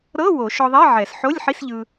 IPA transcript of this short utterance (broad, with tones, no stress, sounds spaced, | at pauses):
ɾ ɤ˧˥˧ w o˨˩˦ ʃ ɔ˧ ðˤ i˧˥˧ ʕ ɛ˨˩˦ s ħ o˧˥˧ lʲ ħ i˧˥˧ s ʎ ɯ˧